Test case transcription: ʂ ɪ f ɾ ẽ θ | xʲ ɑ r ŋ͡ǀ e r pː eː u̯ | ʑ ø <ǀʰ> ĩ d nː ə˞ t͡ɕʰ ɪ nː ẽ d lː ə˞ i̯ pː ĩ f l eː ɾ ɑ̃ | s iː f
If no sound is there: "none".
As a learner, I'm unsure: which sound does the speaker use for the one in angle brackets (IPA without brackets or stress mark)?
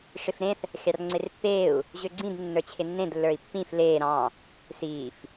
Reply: ɡ͡ǀ